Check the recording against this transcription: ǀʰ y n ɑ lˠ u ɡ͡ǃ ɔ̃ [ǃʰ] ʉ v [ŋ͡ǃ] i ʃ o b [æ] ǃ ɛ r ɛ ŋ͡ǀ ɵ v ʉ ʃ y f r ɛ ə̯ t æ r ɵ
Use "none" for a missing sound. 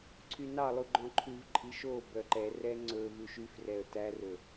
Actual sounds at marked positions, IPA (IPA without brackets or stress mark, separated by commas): ǃʰ, ǃʼ, œ